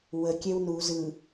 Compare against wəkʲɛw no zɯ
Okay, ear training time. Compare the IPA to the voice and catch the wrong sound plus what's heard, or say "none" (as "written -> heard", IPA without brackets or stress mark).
o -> u